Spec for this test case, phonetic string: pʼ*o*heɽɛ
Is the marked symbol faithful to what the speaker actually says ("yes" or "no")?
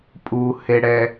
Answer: no